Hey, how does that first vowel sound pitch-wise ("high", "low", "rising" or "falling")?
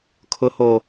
low